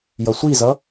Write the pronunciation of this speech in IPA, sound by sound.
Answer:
j ʌ sʷ i z ʌ

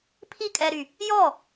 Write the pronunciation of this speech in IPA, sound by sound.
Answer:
pʰ i kʼ ɛ ɾ y | j ɔ

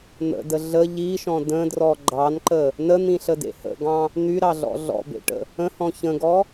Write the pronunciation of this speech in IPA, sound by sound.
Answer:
n̪ ə̰ d ə ɮ ə ʎ i ʃ ɔ̃ d ə̃ d r ɔ ɡ͡ǃ ɑ n ǃ ə | n ə n̪ ĩ ɬ ə d ḛ h ə̰ ɡ ɑ̃ | n̪ y ɾ ɑ ɮ ɔ̰ ɮ ɔ̰ b ḛ ʈ ə̰ | ə̃ h ɔ̃ ç ə̃ ɡ ɔ

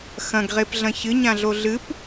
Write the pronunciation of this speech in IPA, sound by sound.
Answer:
x ɐ̃ ɡ ʁ e p ɮ ɐ̃ ç ɨ ɲ ã ɮ o ɮ ɨ p

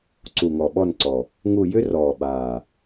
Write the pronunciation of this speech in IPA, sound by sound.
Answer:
ǀ u˨˩ ŋ ɔ˨˩ ɓ ɔ˦˨ n ǀ ɔ˨˩ | ŋ u˦˨ j ʏ˥ r ɔː˨˩ ɓ aː˨˩

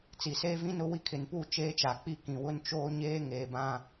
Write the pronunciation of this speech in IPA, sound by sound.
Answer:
t͡s i˨ s eː˦ v ĩ˦ n ʊ˦ w i˦ kʰ ɪ˨ n p u˦˨ t͡ʃ eː˦ t͡ʃ a˨ k͡p i˦ k ĩ˨ w ʊ˦ n t͡ʃ oː˦ ɲ eː˦ ŋ eː˨ b ã˦

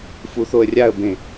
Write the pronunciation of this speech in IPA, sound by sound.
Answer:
f u θ o ə̯ rʲ a ə̯ b ẽ

